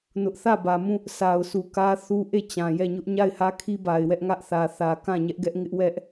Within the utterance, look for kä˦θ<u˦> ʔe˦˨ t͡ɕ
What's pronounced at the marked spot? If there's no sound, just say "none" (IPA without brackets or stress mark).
u˦